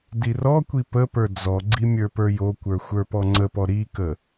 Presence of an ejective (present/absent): absent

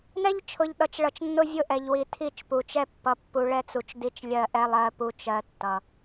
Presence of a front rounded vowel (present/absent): absent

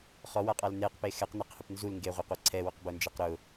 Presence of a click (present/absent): present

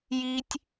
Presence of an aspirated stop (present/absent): absent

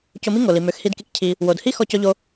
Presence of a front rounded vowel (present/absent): present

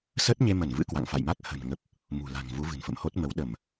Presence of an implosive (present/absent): present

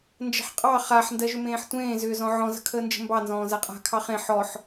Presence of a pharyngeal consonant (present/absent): present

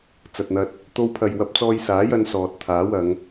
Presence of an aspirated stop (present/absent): present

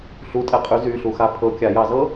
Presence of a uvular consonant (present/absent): present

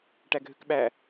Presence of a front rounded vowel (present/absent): present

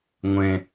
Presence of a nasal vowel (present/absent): present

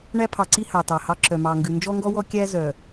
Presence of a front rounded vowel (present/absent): present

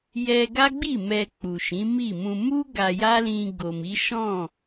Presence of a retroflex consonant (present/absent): absent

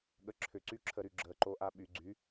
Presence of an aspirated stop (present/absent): present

